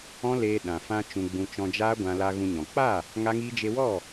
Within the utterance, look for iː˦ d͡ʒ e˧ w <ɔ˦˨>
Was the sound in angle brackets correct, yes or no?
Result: yes